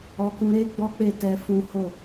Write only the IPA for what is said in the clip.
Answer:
ɔ˧ k ũ˧ ɾ e˦ ɡ͡b ɔ˦ k͡p e˦˨ t ɛ˧ f ũ˦ h o˦˨

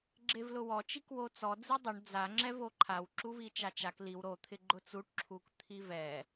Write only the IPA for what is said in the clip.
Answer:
ɡ͡ǁ e v l ʊ w ɔ t͡ʃ i k w o t͡s ɔ d͡z i dˤ ʊ ɳ d͡z a ŋ͡ǁ ɛ v o ǃʰ a w ǁ u v i t͡ʃ a t͡ʃ a k l i w ɾ o t̪ʰ ɪ ɡ͡ǃ ʊ t͡s u ʈ ǁʰ u k t̪ʰ i v ɛ

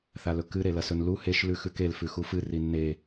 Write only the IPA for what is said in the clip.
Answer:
θ a l ɵ k ɨ ɾ e l ɐ s ɵ n l u h e ʃ l ʉ x ʉ k e l f ʉ x u f ɨ r i nː e

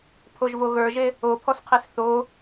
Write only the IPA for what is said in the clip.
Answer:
pʰ o ʒ v o ɣ ə˞ ʒ e | o pʰ ɔ s qʰ e s θ o

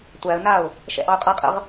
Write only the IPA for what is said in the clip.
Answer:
tʷ æ ə̯ n a ʊ̯ | ʃ ɛ̰ ʔ ɑ ʊ̯ qʼ a qʼ ə̰ ʁ

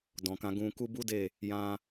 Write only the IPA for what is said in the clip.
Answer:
d ɔ̃˨ k ã˧ ɡ ũ˧ k u˦ b u˦ d e˦˨ | j ã˧

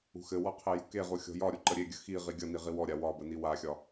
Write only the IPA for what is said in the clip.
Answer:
ṳ x ɘ w ɔ qʰ e j ṳ k e ʁ u xʲ ɔ̤ j ɒ ɾʲ u ǃ ə ɾʲ e ɡʲ ə x i ʁ i ɡʲ ʌ n i ʁ i w ɔ ɾʲ a w ɒ b ə n i w a xʲ ɒ

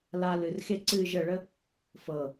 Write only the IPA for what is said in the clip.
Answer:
l a l ɨ r x e ǀ ɨː ʒ ə ɭ ə | f ɤ

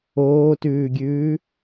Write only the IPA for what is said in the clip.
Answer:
oː t ʉː ɡʲ ʉː

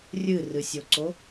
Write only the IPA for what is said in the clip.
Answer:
rʲ ɨ r ɨ sʲ o ǀ o

